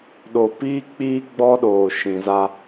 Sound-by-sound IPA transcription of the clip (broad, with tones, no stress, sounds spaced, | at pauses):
ɗ o˨ p iː˦ k͡p iː˦ ɡ͡b ɔ˦ ɗ oː˨ ʃ ĩ˨ z a˦